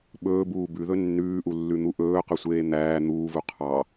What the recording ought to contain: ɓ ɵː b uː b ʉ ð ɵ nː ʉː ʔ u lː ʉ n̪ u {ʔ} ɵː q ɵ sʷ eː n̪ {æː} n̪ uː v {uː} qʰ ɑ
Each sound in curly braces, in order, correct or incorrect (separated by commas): correct, correct, incorrect